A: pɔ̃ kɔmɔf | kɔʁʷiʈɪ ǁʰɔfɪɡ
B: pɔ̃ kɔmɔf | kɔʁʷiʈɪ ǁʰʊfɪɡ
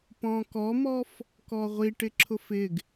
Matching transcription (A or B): B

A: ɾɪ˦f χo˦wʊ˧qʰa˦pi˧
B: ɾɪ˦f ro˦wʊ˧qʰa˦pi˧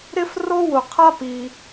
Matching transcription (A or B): B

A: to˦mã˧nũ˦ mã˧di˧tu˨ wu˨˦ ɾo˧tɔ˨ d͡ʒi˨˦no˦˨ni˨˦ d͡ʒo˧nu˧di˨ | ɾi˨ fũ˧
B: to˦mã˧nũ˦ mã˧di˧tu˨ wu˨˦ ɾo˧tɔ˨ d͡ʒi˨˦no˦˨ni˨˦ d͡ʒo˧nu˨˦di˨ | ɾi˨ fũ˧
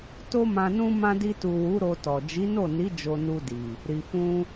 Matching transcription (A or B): A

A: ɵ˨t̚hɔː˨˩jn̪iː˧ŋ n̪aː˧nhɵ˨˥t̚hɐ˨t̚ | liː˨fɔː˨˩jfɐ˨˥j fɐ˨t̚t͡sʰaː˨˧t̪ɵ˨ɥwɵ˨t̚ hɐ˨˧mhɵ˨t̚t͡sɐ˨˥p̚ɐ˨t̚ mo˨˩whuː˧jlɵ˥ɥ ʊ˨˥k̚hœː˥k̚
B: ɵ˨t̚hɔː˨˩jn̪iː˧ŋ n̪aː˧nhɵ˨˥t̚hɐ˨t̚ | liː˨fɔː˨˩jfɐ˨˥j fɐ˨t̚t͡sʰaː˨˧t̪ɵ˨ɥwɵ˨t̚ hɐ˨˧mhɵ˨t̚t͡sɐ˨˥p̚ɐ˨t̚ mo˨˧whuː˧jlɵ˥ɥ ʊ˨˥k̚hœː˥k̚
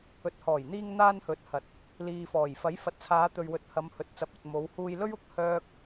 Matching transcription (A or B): B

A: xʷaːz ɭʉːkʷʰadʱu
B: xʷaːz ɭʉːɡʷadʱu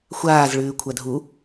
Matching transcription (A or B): A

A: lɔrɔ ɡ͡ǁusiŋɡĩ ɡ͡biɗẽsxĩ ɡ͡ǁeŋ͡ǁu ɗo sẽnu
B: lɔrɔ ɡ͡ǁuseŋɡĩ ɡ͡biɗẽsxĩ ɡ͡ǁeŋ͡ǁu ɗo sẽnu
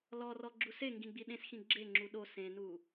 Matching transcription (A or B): B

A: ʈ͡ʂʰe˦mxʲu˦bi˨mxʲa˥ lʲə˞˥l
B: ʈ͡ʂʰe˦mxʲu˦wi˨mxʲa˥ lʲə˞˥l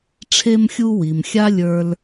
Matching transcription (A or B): B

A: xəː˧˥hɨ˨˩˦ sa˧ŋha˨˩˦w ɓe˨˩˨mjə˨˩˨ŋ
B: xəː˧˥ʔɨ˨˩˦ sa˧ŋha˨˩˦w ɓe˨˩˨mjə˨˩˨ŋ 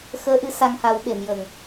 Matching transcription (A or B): B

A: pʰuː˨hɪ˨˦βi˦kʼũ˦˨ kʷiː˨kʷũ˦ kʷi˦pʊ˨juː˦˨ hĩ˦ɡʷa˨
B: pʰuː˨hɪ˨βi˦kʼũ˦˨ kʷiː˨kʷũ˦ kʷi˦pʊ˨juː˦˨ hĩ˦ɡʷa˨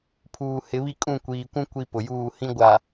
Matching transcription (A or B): A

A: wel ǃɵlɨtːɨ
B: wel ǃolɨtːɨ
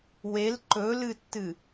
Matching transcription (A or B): A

